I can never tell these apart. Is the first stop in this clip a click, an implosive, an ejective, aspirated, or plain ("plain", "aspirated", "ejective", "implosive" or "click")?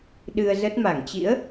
implosive